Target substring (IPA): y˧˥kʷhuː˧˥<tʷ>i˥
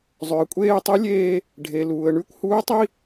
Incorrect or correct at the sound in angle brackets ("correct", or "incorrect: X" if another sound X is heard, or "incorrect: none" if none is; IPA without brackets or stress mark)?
incorrect: tˤ